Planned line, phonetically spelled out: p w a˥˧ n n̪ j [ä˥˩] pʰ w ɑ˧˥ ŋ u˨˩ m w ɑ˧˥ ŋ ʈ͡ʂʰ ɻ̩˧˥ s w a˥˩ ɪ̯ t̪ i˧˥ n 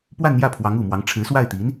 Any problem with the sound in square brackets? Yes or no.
no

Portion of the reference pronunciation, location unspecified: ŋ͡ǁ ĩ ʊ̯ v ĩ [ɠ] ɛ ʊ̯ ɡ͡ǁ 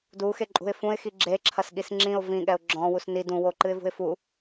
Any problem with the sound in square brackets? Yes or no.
no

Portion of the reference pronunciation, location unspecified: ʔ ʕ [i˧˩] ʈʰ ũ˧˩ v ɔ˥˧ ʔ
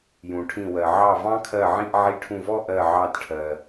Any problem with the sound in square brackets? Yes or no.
no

